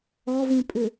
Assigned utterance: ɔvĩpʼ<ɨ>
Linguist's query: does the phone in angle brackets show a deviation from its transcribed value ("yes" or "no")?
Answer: yes